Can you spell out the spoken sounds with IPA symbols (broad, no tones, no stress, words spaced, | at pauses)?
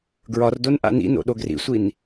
ɡɹɒrdon ʔa̰nḭno̰ ɗoɡrḭsʷin